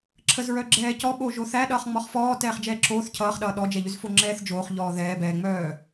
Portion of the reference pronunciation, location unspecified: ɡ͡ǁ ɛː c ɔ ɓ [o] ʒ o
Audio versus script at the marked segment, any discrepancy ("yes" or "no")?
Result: no